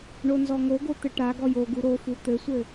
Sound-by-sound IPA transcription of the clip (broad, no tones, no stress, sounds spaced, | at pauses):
ɳ o n z ɔ ŋ o ɡ o t̪ ɘ ʈ a ɡ ɔ j o ɡ u ɾ o f u t̪ ɘ sʷ ɘ